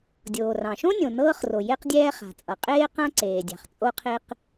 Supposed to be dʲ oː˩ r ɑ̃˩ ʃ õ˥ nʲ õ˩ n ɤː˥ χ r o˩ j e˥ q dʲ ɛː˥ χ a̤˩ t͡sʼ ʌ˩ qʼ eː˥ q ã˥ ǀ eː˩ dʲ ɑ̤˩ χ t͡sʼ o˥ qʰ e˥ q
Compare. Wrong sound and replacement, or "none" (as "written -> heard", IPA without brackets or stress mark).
none